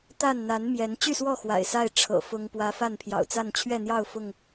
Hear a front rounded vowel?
yes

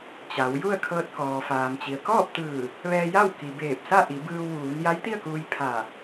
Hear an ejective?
no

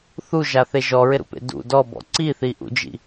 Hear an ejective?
no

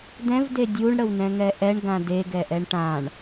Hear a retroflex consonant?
yes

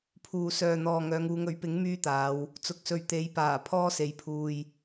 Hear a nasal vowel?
no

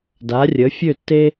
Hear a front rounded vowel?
yes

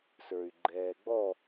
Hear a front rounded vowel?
yes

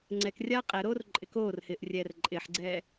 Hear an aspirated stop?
no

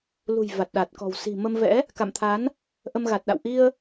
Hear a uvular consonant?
no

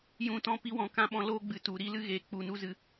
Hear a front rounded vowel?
no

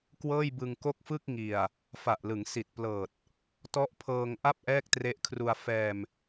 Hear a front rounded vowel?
no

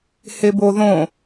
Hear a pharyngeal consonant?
no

